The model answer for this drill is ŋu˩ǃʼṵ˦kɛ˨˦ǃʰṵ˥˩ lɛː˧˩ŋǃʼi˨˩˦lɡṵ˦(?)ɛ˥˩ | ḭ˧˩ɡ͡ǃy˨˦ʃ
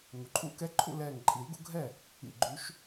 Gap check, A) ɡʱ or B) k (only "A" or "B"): A